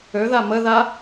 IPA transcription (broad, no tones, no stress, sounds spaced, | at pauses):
ø ð a m ə ð a